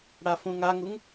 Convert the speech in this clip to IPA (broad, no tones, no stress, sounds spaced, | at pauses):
ɽ a f ũ ŋ a ŋ u ŋ